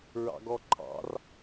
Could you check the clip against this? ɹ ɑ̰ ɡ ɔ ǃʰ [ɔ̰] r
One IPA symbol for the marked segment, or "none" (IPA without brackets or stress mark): ɑ̰